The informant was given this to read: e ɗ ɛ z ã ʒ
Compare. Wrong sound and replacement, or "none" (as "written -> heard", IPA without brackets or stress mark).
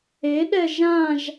z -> ʒ